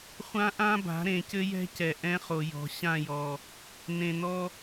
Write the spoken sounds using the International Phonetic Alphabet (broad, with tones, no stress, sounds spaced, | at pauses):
χʷ ã˦ ʔ ã˦ b a̤˨˦ ɾ ẽ˨ c ɘ˦ j ɛ̤˦ c ɛ˨ ʔ ɛ̃˦ χ o˨ j ɔ̤˨ ɕ ã˦˨ j ɔ˨ | n ẽ˨ n ɔ˦